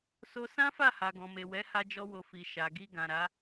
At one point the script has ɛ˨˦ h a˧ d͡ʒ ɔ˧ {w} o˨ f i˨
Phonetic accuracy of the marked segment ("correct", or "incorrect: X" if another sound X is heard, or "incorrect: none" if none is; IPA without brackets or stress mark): correct